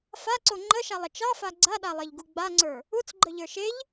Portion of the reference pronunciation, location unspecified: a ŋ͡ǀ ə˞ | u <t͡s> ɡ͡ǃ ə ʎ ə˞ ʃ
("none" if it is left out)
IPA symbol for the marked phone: t͡s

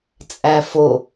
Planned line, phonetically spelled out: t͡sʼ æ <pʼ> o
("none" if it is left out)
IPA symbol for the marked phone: f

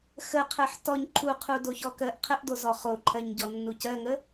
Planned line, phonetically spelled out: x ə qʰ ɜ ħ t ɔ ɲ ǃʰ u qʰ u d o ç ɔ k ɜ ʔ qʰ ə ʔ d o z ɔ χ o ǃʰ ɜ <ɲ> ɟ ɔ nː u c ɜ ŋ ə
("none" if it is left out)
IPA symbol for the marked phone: ɲ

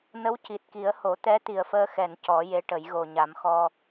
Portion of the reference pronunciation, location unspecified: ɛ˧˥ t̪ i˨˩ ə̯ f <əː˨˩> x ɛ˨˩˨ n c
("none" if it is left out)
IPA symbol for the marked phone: əː˧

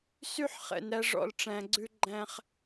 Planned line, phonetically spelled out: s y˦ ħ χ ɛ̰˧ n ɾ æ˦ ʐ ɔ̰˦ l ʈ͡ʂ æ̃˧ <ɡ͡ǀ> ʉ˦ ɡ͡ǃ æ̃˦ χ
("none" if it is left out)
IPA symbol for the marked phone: ɡ͡ǀ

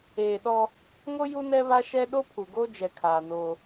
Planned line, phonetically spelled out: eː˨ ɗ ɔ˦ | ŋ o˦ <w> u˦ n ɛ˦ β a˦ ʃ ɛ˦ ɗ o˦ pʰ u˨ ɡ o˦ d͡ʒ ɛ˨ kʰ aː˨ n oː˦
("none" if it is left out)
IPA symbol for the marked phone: j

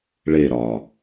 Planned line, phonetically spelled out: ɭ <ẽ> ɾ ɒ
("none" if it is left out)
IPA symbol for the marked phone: e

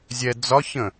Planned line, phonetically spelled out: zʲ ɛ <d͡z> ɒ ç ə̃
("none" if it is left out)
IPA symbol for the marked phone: d͡z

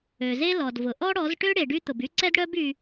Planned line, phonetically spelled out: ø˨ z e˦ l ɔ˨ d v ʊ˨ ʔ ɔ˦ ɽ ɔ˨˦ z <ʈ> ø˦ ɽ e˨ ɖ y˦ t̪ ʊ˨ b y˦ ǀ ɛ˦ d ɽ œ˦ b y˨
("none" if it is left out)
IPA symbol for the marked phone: ʈ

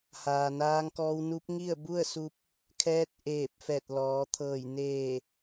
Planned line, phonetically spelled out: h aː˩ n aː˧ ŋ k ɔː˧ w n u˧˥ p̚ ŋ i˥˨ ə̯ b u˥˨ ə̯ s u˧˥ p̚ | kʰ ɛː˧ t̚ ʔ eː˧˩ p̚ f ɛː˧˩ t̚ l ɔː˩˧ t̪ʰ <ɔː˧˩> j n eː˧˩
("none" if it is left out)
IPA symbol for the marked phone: ɤː˧˩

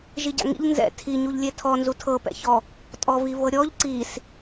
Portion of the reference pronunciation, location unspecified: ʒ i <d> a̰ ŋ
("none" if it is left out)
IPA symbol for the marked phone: ɟ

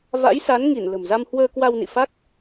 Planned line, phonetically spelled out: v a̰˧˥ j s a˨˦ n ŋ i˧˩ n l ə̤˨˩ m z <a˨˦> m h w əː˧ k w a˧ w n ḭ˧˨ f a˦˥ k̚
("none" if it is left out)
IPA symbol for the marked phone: a˧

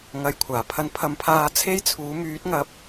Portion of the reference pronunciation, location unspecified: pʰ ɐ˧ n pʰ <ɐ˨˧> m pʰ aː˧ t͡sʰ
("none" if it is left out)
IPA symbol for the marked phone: ɐ˨˧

